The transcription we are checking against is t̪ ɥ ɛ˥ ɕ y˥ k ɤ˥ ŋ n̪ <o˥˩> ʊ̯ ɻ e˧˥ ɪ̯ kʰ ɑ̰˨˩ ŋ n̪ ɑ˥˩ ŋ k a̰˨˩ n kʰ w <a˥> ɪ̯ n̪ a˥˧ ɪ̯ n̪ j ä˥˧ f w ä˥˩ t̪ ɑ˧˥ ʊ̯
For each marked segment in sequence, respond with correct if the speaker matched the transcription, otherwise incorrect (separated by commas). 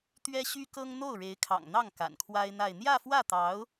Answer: correct, correct